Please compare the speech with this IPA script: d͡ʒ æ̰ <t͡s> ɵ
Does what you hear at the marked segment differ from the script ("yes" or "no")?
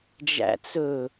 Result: no